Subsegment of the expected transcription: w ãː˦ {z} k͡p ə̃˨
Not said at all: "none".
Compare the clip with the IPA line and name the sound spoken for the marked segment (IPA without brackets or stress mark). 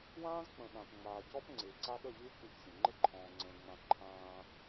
z